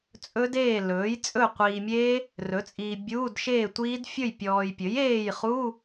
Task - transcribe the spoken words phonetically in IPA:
t͡sʼ ɵ˦˥ d eː˥˨ l ɵː˩˥ j t͡sʼ ɵ˥˨ qʷ iː˨ mʲ eː˦˥ | r ɵ˩˥ t͡sʼ iː˨ bʲ uː˧˥˧ d ʃ eː˥˨ tʷ iː˦˥ d fʲ ɵ˥˨ j pʲ ɔː˨ j pʲ ɵ˩˥ j eː˥˨ j χ uː˧˥˧

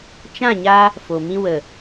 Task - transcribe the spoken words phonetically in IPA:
t͡ʃ ã˦˨ ɲ a˧ | f o˨ m ĩ˧ w ə˨

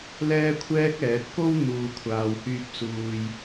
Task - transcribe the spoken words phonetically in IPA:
l ɛː˥ kʷʰ ɛː˥ k̚ ɛː˨˥ t̚ k o˧ w n̪ uː˨ kʷʰ aː˨ w h yː˧ p̚ s uː˨ j

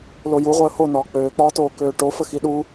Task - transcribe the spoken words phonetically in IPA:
l o j u ʁʷ əː h o n ɒː k͡p øː k͡p ɒː t oː k øː ʈ o f ə x i ɗ u

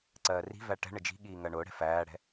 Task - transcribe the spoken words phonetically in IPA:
ǀ ɜː r i̤ v æ ʈ ɛ̤ ɳ ɪ d͡ʒ i̤ ɠ iː ŋ ɜ ɳ ʊː ɽ ɛ̤ f æː ɽ ɛ̤

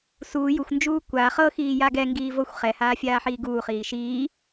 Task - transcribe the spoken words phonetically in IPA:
s u j u xʷ n d͡ʒ uː kʷ a χ ɤ x iː j a ɡ ɛ ŋ ɡ iː v ɤ xʷ χ ɛ h aː fʲ aː ħ iː ɡ uː χ iː ʃ iː

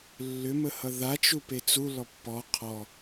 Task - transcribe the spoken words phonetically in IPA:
lː ʏ m ə h ʌ ð a t͡ʃ u p e t͡s u l ɔ pː ɔ qʰ ɔ

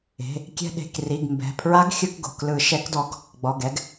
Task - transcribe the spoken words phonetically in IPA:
e̤˩˧˩ | kʲ ɛ̤˧ ɗ e̤˩˧˩ k r i˩˧˩ ɡ m b ɛ̤˩˧˩ pʰ ɹ a˧˥ ɡ xʲ ɯ˧ k ɡ o̤˩˧˩ k l ɯ˨˩˦ ʃ ɛ˧˥ k d ɔ˧˥ ɡ | ɡ͡b ɔ˩˧˩ ɡ ɛ˧ ɡ

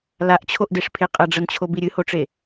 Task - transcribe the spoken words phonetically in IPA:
l a ʔ t͡ɕʰ o ʔ d e ʂ pʰ e qʼ ɐ ɖ͡ʐ ɐ n t͡ɕʰ o b i ɾʲ ɨ h o ʈ͡ʂ e

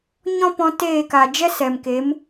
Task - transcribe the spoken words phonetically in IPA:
ɲ ɔ̃˦ p ɔ̃˧ t eː˦˨ k a˨ d͡ʒ ɛ˦ s ɛ˨ m k e˨˦ m

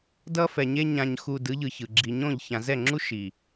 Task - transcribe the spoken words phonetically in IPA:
d ʌ˦ f ɛ˨ ɲ e˦ ɲ ã˨ ɲ x u˨ d ɯ˨˦ ʎ ɯ˨ ç ɯ˨ ɡ͡ǁ i˨ ɲ õ˦˨ ʎ ç ã˨ z ɛ˦˨ ŋ͡ǁ u˦ ʃ i˨

